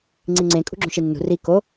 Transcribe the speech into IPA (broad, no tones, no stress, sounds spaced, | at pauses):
ŋ͡ǀ i ŋ͡ǀ ẽ kʼ ṳ ɡ͡ǁ õ ʃ i nː ṳ r i k o